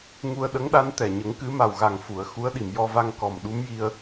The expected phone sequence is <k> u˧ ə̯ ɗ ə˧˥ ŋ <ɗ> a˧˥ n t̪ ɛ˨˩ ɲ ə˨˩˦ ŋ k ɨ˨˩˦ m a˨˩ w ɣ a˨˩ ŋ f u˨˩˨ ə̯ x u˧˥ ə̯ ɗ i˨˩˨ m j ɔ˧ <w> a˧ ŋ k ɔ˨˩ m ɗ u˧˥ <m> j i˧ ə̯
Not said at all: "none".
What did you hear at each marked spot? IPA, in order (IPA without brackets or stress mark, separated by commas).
ŋ, ɗ, v, m